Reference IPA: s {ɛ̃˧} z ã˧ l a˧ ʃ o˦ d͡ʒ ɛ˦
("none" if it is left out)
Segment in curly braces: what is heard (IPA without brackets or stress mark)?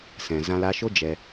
ɛ̃˨